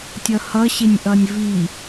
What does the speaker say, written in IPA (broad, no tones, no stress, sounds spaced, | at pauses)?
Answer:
tʲ ʌ h ʌ ɕ e nʲ ʔ ʌ nʲ v i